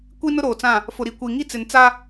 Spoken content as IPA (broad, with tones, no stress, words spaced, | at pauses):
kʷi˦nʊ˦ɾoː˨t͡sã˦˨ | fʊ˨ɾi˨kʷi˨ ŋi˦t͡sɪ˨nt͡sa˦